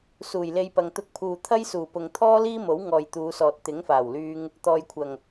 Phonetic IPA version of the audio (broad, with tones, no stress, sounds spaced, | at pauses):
s uː˨˩ j l e˧ j p ɐ˨ ŋ t̪ ʊ˧ k̚ pʰ uː˨ t̪ʰ ɐ˥ j s uː˨˩ p ʊ˨ ŋ t̪ʰ ɔː˥ l iː˥ m o˨˥ w ŋ ɔː˨ j t̪ uː˨˧ s ɔː˨ t̚ t̪ ɪ˨˥ ŋ f aː˨˩ w l yː˧ ŋ | t̪ ɔː˨ j kʷʰ ɐ˨˩ ŋ